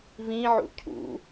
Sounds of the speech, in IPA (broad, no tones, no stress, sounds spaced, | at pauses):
v ĩ ʕ ṵ cʰ ṵ